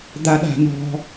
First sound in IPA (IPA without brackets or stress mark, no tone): d̪